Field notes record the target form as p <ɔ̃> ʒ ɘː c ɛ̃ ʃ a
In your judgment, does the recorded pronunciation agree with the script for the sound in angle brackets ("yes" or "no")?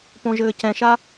no